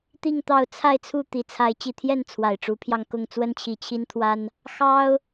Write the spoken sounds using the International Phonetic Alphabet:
t̪i˥˨ŋt̪ɑ˥˨ʊ̯ t͡sʰa˥˨ɪ̯t͡sʰu˥˨ t̪i˨˩t͡sʰa˨˦ɪ̯ t͡ɕi˨˩t̪ʰjɛ˥˨n t͡sʰwa˨˩ɪ̯ʈ͡ʂu˨˦pʰjɑ˧ŋkʊ˥˨ŋ t͡swə˦nt͡ɕʰi˨˩t͡ɕʰi˦nt̪ʰwa˦n | xɑ˦ʊ̯

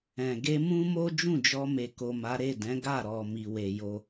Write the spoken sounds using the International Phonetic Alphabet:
ɛ̃˨ ɡe˧mũ˦mo˦ d͡ʒũ˦˨d͡ʒɔ˧me˨ ko˨ma˨˦ ɾe˦˨dɛ̃˨˦ɡa˦˨ ɾɔ˨ mi˨we˨ jo˧

